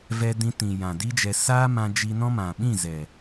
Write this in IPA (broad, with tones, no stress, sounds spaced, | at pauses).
v ɛ˧ d ĩ˧ t ĩ˨ j ã˨ d iː˦ d͡ʒ ɛ˧ s aː˦ m ã˧ d͡ʒ i˧ n ɔ̃˦ m ã˨ ɓ ĩ˦˨ z ɛ˨